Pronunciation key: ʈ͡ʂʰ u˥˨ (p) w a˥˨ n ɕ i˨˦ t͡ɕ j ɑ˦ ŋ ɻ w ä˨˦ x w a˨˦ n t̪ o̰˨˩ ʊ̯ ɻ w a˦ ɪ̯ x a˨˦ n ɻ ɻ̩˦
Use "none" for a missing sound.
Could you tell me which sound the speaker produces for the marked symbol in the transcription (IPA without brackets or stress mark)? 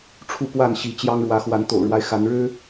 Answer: p